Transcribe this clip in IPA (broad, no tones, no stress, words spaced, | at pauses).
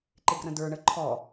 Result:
ǃɪɡrə̃də˞ ɳəǃʰɔ